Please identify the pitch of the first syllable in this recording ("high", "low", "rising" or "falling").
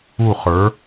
falling